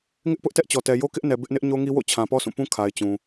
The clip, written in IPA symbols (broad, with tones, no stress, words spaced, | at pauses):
ŋɪ˦ʔpʊ˦ʔ tɛ˦ʔt͡ɕɔ˨tɛ˨ jo˦kɪ˦ʔ nɛ˨ bɪ˦ʔnɪ˦ʔ ɲo˦ŋi˦wo̰˦˨ t͡ɕʰã˨pɔ˦sʰũ˦˨pũ˦ kʰa˨ɪ̯t͡ɕũ˨